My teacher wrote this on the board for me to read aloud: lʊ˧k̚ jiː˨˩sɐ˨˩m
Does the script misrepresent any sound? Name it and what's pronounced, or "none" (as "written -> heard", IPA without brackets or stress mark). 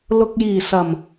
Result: none